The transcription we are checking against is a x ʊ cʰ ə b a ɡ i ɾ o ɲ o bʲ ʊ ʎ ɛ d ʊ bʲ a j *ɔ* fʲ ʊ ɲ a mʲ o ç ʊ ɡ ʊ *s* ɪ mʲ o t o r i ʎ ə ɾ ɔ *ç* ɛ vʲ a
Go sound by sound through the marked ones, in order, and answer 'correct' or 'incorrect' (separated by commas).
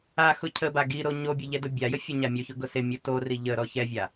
incorrect, correct, correct